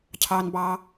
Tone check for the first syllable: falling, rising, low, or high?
low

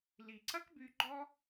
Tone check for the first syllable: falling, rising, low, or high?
low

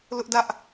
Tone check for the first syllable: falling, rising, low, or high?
high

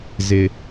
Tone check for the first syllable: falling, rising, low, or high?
low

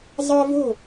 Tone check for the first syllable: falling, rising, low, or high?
high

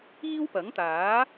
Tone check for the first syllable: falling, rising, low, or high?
high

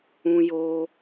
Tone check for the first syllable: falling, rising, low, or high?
high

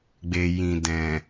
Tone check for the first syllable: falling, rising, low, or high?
low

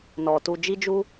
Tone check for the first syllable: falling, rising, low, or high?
low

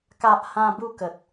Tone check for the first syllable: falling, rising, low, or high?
high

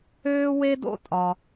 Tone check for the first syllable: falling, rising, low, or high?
high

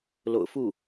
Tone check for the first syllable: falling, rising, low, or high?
low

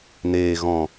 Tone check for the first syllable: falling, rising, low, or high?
low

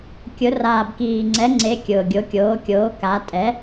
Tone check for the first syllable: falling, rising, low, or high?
rising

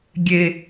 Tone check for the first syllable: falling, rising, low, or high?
low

